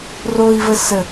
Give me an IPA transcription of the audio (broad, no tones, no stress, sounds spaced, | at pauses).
r o i̯ v ə s ə